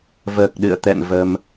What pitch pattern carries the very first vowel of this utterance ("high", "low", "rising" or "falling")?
low